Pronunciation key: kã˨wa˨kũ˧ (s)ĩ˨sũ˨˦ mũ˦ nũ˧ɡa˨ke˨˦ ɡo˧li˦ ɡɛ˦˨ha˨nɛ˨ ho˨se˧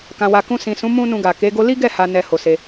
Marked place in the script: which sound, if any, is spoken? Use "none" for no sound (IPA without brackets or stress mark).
s